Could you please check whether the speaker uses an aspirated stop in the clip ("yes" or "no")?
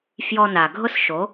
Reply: no